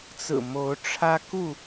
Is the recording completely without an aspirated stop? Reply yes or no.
no